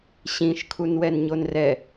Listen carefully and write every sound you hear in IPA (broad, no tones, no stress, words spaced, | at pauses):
ɕĩʃkʰunwɛn ɲonrɛ